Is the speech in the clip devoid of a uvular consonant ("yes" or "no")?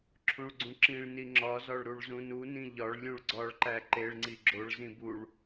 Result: yes